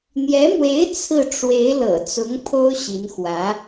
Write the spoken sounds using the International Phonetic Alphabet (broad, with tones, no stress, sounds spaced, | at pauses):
n̪ j ɛ˧˥ m w e˧˥ ɪ̯ t͡sʰ ɹ̩˥˩ ʈ͡ʂ w e˧˥ ɪ̯ l ɤ̰˨˩ t͡s ʊ˧˥ ŋ pʰ o˥ ʊ̯ ɕ i˧˥ n x w ä˧˥